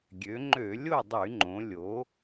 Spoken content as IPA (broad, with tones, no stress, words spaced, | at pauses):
ɡʲø˩˧ŋ͡ǃø˧˩˧ lʲo˥˨dˤy˧˩˧ŋ͡ǃõ˩˧ lʲo˩˧